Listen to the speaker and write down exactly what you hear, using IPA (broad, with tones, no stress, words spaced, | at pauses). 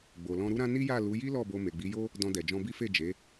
ɡ͡bo˨lɔ̃˧ɾu˦ɾã˦ ni˦ja˦˨ lu˨˦ ji˦ lɔ˦˨bo˧ me˨ɡ͡bi˨˦jo˦ | dɔ̃˧dɛ˨ d͡ʒɔ̃˧bi˦fe˦˨ d͡ʒe˨˦